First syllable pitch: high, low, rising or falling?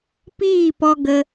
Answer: falling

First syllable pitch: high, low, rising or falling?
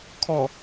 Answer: low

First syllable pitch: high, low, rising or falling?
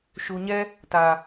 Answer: low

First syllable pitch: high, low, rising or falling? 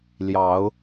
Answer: rising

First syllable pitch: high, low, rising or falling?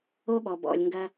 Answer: high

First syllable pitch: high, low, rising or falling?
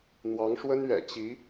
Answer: rising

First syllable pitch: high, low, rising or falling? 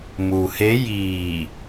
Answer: low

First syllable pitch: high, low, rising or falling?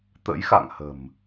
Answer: rising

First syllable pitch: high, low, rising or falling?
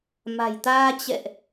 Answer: low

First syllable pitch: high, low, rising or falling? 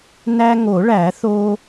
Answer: high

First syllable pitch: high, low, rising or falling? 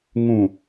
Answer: low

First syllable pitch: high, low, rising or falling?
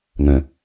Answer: low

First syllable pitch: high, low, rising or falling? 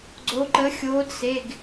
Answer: rising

